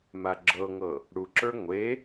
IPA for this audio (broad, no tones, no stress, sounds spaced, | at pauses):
m a ɡ͡ǁ ɤ ŋ ɤ | ɽ u ǁ ə˞ ŋʷ e